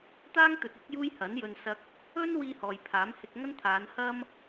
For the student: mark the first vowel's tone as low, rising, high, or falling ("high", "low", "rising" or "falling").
high